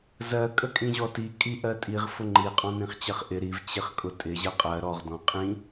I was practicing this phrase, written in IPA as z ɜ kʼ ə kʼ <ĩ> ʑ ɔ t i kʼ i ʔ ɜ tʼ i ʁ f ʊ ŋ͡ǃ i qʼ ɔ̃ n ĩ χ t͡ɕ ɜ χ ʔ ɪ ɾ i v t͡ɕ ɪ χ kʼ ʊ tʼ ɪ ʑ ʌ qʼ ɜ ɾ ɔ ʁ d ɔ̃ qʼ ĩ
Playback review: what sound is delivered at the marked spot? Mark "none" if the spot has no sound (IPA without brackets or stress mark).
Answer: ĩ